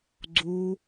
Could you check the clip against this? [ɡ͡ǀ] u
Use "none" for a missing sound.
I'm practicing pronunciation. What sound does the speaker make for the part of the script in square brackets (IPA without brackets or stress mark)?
ɡ͡ǀ